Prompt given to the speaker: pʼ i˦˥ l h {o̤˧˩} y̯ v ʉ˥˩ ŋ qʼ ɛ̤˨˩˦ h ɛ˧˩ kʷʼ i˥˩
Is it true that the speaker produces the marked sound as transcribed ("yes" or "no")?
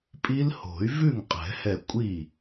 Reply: no